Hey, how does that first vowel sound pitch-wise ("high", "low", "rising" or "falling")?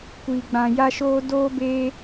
low